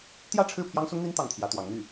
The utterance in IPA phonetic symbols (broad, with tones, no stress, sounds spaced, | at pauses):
t̪ j ä˥˧ ʈ͡ʂʰ ɻ̩˥˩ pʰ j ɑ˥ ŋ s ʊ˥ ŋ n̪ i˥ n t̪ ɑ˥˩ ŋ t̪ʰ j ä˧˥ t̪ w ɑ˧˥ ŋ n̪ y˥˩